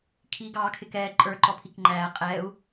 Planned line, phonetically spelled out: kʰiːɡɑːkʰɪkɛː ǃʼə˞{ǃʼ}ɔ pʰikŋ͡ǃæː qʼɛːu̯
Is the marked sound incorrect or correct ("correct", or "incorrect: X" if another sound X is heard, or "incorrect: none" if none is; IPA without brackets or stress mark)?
incorrect: ǃ